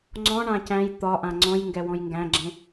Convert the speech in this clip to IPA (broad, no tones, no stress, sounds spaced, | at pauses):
ŋ͡ǀ ɔ̃ ɳ ã c æ̃ j t̪ ɒ ʔ ã ŋ͡ǀ ɔ̃ j ŋ ɡ ɛ w ɔ̃ j ŋ ɡ æ̃ ɡ͡ǁ ẽ